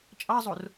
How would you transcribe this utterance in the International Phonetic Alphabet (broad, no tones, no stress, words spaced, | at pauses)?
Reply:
t͡ʃʼɑzˤor